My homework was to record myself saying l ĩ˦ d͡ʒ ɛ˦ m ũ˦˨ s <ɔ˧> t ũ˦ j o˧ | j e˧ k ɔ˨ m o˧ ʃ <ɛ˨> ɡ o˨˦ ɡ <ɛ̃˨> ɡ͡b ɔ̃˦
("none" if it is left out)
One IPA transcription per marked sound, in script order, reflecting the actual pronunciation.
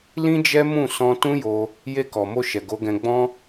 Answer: ɔ̃˧, ɛ˨, ɛ̃˧

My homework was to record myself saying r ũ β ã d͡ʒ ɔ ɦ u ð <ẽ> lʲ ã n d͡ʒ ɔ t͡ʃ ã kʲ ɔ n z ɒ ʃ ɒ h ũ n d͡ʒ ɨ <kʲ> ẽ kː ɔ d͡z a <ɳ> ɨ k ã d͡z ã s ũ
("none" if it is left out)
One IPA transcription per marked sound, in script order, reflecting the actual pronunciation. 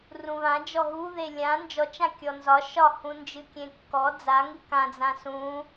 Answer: e, kʲ, ŋ

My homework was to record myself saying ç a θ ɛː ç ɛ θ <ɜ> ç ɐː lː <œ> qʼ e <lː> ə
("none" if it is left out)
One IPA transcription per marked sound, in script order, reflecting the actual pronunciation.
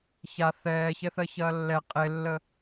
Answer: ɜ, ɛ, lː

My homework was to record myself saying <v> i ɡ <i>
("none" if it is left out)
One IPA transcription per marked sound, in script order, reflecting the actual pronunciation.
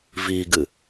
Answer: v, ɨ

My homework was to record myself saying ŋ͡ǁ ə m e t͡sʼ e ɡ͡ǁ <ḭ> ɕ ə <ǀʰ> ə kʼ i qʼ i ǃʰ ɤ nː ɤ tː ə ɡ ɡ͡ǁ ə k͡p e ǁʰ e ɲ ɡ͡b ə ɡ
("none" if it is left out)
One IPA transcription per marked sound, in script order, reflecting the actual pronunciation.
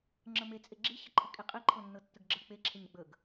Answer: i, ǃʰ

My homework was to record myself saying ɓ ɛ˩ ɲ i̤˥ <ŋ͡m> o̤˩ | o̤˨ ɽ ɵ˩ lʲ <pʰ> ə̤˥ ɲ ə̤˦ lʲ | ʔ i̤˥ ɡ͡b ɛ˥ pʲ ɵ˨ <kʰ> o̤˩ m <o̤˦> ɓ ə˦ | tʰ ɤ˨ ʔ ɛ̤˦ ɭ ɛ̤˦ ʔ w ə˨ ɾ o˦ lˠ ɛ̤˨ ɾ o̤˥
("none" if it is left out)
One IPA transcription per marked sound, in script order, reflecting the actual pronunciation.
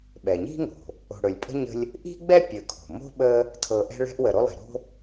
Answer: ŋ, pʼ, kʰ, o̤˥

